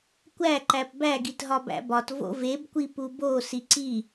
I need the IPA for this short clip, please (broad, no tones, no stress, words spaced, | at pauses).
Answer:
kʷæǃæp bæɡitɦɒ bæ̰bɒt vo̰vebkʷi pubo siǀi